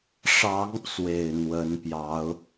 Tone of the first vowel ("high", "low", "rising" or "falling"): rising